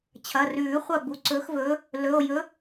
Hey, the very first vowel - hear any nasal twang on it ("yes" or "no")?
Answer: no